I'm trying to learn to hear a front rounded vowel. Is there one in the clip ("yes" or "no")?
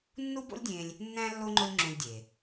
no